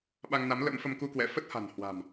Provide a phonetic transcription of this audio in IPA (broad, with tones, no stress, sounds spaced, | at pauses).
ɓ a˧ ŋ n a˨˦ m l ə̰˧˥ m f ə˧ m k u˧ k w ɛ̰˧˨ f ə˦˥ t̚ h a̤˨˩ n h w a̤˨˩ m